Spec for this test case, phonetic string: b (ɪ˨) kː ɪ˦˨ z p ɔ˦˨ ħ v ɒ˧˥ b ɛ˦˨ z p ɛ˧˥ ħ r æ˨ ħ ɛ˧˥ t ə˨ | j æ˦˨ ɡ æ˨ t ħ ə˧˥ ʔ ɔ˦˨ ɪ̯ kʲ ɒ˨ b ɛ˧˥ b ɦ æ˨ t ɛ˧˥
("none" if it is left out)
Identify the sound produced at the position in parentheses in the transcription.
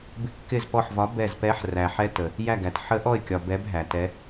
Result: ɪ˦˨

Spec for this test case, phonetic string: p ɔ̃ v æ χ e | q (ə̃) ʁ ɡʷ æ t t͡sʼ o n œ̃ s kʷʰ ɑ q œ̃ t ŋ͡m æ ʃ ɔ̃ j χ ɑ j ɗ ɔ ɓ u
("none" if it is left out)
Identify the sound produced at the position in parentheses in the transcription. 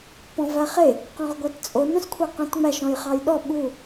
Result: ɔ̃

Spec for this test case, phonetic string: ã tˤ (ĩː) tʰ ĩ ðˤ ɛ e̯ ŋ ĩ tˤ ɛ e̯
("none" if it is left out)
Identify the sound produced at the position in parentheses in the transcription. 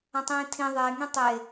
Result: ĩː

